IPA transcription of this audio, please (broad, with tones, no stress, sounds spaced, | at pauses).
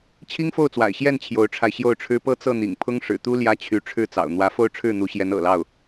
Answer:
t͡ɕʰ i˥ ŋ f o˥˩ ʊ̯ t͡s w a̰˨˩ ɪ̯ ɕ j ɛ˥˩ n t͡ɕʰ j o˧˥ ʊ̯ ʈ͡ʂʰ a˧ ɪ̯ ɕ j o˥˩ ʊ̯ ʈ͡ʂʰ ɻ̩˥ p ɤ˥˧ t͡s ɤ˥˩ n̪ ḭ˨˩ ŋ pʰ ʊ˥ ŋ ʂ ɻ̩˨˩ t̪ u˥ l j ä˥ t͡ɕʰ y˧˥ ʈ͡ʂʰ ɻ̩˥˩ t͡s ɑ̰˨˩ ʊ̯ n̪ w ä˧˥ f o˥˧ ʊ̯ ʈ͡ʂʰ ɻ̩˥˩ n̪ u˧˥ ɕ j ɛ˧˥ n ɤ̰˨˩ l ɑ˥˩ ʊ̯